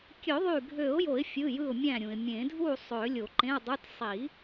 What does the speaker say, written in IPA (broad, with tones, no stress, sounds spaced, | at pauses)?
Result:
kʲ ø˨˩˦ ðˤ y˧˩ ɡʱ ø˨˩˦ ʊ̯ j o˨˩˦ ɪ̯ fʲ ɯ˩˧˩ j ɯ˧˩ ʊ̯ mʲ æ̃˧˩ ɾʲ ũ˩ ɪ̯ mʲ ẽ˨˩˦ dʱ u˥˨ sˤ ø˨˩˦ lʲ o˨˩˦ ǃ ẽ˧˥˧ ʊ̯ dˤ ɯ˧˥˧ t sˤ i˨˩˦